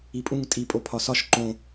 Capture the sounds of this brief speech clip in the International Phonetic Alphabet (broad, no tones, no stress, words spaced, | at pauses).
ipʼũŋ tʼi pʼopʰɒsɒʃ ǃõ